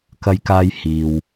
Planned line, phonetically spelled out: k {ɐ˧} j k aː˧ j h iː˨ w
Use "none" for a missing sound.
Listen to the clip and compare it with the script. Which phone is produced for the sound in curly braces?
ɐ˧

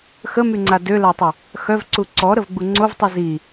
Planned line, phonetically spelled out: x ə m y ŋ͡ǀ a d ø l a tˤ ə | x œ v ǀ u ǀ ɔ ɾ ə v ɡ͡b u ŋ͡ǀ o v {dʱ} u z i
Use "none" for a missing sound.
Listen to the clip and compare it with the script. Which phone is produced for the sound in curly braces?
tˤ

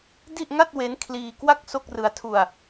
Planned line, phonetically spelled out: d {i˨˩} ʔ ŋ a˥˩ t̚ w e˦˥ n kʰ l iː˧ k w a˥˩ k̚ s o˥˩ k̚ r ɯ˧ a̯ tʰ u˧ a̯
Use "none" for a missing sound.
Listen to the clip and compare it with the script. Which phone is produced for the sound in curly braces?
i˥˩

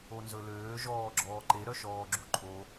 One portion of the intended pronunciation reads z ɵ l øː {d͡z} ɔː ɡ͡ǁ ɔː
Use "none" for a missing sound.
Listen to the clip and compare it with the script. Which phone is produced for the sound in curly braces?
ʒ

